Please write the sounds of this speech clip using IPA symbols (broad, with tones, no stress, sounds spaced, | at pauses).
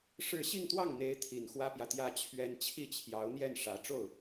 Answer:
ʂ ɻ̩˥˧ ɕ i˥˧ ŋ t̪ w ɑ˥˩ ŋ n̪ e˧˥ ɪ̯ t̪ʰ i˨˩ n x w ä˥ p j ä˨ t̪ j ä˥ t͡ɕʰ ɥ ɛ˥ n t͡ɕʰ i˥˩ t͡ɕʰ j ɑ˧˥ ʊ̯ n̪ j ɛ˥˩ n ʂ ä˧˥ ʈ͡ʂ o˥˩ ʊ̯